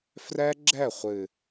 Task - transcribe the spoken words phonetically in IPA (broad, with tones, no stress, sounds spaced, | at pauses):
f r ɛ˦ ɡ͡ǁ ɛ˦˨ χʷ ɨ˨